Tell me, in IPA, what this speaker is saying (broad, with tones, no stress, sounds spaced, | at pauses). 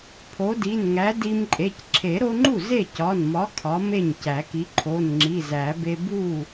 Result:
pʰ o˨˥ d i˩˧˩ n ŋ æ˨˥ d i˦ m ǃʼ e˩˧˩ c ǁʰ e˨˩˦ ɾ o˦ ŋ͡ǃ u˥˩ z e˥˩ c ɒ˩˧˩ n m ɒ˨˥ kʰ ɒ˨˥ m e˥˩ ɲ c æ˨˩˦ k i˨˥ ǃʰ o˩˧˩ n ŋ͡ǁ i˩˧˩ z æ˨˩˦ b e˦ b u˥˩